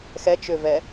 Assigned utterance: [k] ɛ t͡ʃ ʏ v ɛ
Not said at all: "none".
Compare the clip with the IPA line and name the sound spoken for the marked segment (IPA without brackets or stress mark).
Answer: x